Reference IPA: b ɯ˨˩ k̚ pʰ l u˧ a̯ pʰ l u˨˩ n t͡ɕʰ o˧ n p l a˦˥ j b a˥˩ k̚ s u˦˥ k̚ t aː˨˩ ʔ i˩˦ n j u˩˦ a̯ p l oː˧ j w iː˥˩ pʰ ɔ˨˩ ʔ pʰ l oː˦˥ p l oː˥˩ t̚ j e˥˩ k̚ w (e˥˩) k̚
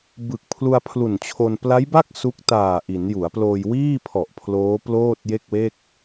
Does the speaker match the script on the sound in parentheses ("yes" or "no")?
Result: yes